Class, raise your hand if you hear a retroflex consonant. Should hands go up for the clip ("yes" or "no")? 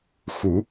no